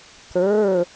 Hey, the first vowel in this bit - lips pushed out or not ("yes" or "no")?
no